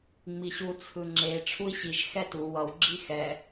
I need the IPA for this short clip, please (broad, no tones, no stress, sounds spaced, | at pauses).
ŋ͡m i ɕ u t͡sʰ ɯ ŋ͡ǁ e ʈ͡ʂʰ u i̯ ɕ i ʒ x ɛ t u w ʌ w ɡ͡ǁ i x ɛ